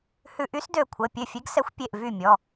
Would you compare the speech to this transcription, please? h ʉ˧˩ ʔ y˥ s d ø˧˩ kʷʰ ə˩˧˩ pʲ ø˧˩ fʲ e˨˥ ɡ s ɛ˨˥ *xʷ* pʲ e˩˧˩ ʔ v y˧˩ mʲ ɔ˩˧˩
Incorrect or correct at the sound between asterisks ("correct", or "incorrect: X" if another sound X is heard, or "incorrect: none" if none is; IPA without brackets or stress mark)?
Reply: correct